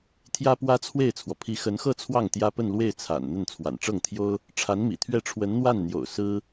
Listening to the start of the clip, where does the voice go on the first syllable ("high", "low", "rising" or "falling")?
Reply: high